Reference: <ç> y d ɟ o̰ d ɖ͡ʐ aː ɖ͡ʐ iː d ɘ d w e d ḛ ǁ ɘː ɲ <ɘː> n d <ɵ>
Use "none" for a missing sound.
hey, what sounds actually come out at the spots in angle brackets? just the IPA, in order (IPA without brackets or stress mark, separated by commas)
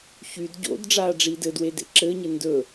ç, ɘ, ɵ